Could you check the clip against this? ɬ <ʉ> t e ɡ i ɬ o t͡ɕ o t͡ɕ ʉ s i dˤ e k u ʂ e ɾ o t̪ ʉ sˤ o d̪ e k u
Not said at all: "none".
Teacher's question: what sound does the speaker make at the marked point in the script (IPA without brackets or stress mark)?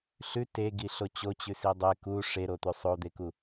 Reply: ʉ